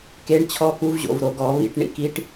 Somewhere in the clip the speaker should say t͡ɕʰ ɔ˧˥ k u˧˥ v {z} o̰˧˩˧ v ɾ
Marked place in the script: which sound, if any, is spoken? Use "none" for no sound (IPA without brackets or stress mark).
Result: ʑ